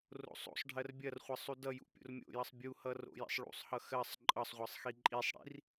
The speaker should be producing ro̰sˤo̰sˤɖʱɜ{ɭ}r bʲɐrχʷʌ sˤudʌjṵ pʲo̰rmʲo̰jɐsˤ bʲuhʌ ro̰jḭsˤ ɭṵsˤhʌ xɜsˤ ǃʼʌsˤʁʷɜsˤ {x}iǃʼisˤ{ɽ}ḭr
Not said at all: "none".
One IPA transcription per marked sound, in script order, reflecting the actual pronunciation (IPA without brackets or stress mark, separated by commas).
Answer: none, x, ɽ